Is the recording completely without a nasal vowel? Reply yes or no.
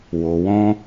no